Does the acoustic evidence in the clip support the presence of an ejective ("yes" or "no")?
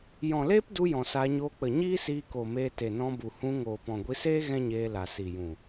no